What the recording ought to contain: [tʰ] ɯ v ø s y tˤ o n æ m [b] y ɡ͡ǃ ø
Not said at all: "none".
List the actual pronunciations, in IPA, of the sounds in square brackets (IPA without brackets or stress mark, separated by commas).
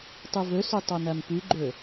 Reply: tˤ, p